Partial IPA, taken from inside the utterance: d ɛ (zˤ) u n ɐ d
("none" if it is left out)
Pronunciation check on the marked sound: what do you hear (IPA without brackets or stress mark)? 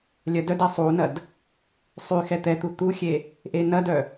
sˤ